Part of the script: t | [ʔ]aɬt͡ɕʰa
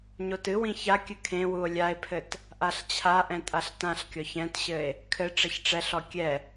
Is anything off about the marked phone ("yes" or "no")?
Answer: no